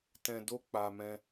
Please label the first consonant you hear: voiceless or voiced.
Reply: voiceless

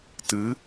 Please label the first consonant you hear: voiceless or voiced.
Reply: voiceless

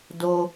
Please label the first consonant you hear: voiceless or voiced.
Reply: voiced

